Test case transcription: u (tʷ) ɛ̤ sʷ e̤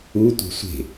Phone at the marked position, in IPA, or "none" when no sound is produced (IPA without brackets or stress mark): tʷ